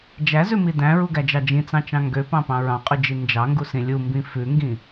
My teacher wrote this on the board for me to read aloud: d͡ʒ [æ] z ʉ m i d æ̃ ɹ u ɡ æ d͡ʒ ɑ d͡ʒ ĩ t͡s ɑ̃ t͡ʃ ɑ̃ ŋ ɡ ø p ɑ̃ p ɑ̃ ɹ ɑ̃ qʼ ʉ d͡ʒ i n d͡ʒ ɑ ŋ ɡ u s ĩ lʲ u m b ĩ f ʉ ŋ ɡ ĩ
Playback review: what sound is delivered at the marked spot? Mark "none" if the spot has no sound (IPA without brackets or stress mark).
æ